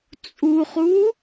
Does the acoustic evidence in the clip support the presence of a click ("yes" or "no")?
no